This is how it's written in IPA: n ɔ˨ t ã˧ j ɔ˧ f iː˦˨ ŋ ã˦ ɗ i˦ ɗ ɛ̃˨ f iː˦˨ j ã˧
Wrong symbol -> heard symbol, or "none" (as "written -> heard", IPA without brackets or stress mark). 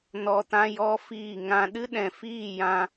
i˦ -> ɨ˦